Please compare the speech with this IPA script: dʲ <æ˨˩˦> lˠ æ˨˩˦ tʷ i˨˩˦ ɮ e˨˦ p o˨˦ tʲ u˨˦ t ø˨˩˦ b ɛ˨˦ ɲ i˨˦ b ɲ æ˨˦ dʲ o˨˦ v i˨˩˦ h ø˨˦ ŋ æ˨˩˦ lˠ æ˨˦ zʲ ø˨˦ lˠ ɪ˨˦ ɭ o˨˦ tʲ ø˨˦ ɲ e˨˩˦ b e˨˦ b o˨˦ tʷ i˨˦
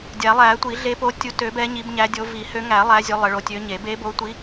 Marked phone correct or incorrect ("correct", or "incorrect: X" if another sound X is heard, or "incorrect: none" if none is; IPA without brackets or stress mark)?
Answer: correct